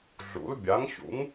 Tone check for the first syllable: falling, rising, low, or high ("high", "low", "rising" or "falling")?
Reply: rising